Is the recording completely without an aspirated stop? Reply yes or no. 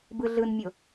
yes